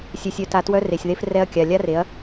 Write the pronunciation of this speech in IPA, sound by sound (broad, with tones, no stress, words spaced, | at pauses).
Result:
sʲœ˨sʲœ˨ta˨ twœ˦re˨sʲðe˦f rɛ˦ɐ̯kʲa˨ lʲa˦re˨˦ɐ̯